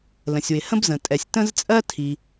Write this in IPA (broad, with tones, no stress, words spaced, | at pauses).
lə̃˩sʲwɪ˩ hə̃˥bzə̃˩tʼɛ˩sʲ tə̃˥zt͡sʼɜ˥ tʰi˩